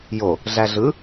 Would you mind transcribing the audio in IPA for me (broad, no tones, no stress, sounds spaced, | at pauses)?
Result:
j o | ɮ æ ɮ ɯ